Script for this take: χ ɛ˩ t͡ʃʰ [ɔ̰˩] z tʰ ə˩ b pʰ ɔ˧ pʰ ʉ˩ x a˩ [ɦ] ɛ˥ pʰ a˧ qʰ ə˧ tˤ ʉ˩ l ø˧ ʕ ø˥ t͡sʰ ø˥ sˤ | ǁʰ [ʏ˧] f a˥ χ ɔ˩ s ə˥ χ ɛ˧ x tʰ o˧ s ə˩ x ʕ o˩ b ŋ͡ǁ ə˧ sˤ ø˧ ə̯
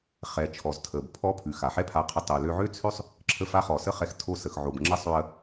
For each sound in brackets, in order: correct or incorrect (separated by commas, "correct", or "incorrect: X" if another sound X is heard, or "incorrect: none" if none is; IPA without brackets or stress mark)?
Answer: incorrect: ɔ˩, incorrect: ħ, incorrect: ə˧